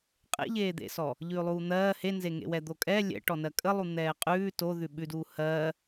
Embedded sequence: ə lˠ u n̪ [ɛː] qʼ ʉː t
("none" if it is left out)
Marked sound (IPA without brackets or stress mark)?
ɛː